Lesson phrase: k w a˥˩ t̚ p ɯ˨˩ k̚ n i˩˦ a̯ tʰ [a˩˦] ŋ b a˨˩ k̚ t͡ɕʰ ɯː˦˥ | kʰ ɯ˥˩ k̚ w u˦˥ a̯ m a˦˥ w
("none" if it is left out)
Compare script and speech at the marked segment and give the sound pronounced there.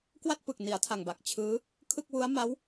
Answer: a˨˩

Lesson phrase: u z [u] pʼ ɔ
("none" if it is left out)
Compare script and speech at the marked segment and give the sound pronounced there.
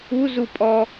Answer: u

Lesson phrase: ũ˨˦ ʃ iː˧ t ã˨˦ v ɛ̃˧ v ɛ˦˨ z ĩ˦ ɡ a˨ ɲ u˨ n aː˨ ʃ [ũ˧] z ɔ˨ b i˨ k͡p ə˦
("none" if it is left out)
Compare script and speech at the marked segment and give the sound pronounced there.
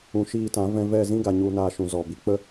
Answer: ũ˨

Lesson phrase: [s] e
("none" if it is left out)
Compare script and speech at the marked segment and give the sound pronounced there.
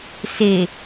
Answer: s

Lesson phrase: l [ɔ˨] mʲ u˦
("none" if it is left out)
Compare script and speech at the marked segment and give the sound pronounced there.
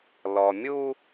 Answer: ɔ˨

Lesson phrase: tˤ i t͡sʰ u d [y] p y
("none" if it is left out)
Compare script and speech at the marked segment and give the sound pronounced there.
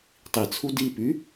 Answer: i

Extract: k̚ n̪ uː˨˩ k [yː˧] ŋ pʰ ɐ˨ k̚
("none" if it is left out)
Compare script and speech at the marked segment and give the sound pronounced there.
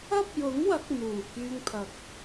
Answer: yː˧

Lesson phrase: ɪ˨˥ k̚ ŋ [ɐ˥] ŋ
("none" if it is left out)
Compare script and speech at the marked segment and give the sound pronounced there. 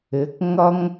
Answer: ɐ˥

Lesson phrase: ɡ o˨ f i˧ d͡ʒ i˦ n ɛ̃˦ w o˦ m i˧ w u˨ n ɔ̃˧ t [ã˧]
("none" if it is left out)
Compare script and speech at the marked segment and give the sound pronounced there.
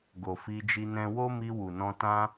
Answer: ã˦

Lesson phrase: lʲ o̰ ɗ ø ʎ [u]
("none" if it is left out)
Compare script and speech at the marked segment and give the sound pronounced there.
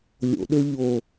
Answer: o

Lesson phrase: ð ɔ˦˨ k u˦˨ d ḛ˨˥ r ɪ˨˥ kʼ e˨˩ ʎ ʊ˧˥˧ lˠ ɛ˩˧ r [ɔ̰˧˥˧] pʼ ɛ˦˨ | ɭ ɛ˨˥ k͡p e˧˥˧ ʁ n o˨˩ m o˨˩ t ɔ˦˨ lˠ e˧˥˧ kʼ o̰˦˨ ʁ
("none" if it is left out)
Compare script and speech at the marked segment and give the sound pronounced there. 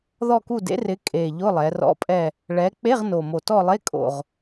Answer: ɔ̰˧˥˧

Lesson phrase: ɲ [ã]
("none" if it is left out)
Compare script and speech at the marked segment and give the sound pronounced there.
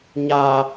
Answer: a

